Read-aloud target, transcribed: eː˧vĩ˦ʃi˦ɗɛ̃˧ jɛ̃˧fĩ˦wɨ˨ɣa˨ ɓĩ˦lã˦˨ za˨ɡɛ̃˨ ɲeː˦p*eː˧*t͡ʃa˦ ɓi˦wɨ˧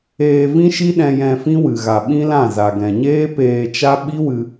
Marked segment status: correct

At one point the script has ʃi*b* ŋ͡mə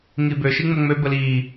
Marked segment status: incorrect: none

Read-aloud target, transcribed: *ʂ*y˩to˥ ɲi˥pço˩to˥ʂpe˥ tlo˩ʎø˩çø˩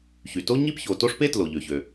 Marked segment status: incorrect: ç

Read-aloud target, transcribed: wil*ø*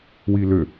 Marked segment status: correct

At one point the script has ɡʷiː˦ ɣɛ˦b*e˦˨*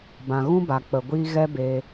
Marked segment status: incorrect: e˧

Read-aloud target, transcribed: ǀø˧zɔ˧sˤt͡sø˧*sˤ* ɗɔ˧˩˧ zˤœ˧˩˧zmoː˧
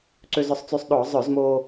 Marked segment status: correct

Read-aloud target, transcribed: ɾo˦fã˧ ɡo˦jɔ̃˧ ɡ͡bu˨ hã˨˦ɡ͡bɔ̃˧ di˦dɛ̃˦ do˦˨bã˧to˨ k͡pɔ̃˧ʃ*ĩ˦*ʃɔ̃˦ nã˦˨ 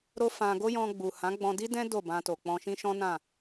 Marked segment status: correct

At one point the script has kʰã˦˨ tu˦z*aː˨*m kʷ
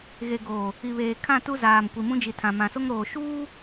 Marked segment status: correct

